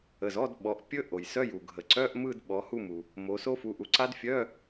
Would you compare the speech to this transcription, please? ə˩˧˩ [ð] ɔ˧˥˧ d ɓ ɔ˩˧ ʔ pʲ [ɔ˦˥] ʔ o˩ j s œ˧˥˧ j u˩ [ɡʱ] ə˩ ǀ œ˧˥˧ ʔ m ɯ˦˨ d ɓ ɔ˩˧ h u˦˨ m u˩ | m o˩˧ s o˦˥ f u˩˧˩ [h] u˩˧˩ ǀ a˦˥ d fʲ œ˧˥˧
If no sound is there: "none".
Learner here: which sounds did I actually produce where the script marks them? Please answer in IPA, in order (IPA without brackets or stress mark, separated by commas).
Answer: z, ɵ˦˥, ɡʱ, ʔ